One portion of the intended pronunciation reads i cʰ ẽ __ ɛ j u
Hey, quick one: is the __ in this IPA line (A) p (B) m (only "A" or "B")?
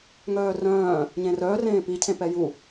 A